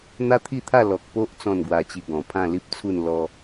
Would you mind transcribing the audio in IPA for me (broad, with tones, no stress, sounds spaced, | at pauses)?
n̪ a˦ t̪ʰ i˥˧ t̪ʰ a˥˧ l ɔ˨ k̚ p o˦ ʔ t͡s ɔ̃˥˧ n ɡ w a˧ t͡ɕ i˧ ɡ ɔ̃˨˩ pʰ ã˥˧ l i˦ p̚ t͡sʰ u˥˧ n l ɔ˦